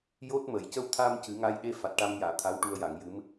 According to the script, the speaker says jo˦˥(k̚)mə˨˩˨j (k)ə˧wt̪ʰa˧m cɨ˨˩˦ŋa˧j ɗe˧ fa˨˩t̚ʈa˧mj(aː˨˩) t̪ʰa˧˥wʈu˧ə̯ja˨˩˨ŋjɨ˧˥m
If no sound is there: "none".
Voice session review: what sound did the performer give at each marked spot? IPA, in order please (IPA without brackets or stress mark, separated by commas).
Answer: t̚, c, aː˨˩˨